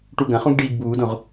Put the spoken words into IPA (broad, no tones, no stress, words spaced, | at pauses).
ʈuɡɐ̃χũɡ ɖiːɡbuːdõʁ